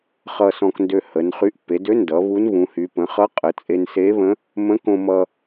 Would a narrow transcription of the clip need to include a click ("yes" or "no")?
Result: no